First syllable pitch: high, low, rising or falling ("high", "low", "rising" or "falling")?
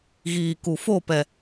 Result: low